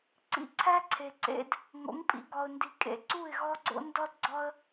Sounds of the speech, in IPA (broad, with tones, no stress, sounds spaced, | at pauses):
ǀ ḭ˧ ǀʰ æ˦ ǀʰ e˨ ǀ ḛ˦ d | ŋ o̰˨˦ ŋ pʼ ḭ˨˦ ɡ ɒ˨ ʊ̯ n d i˨ kʼ ḛ˨ ǀ u˦˨ ɪ̯ ɣ ɒ˦ ɡ͡ǀ o̰˦ n d ɒ˦ d ɡ͡ǀ ɒ˦ ə̯